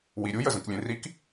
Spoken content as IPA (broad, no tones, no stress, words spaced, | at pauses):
wiɾʲuj əzə̃klʲẽrik